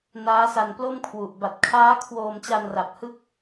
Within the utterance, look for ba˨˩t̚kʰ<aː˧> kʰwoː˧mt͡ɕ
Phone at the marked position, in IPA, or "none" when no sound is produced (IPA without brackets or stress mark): aː˦˥